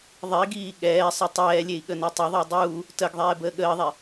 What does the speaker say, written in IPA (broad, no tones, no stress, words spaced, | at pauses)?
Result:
ðˤiɡiː ɠɛːsˤə tˤɛːlʲei̯ ɠənetˤəðˤəː dˤuː | təɡðˤɛː bəːɠəːðˤɛ